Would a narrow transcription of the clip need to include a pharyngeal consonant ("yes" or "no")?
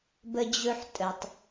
yes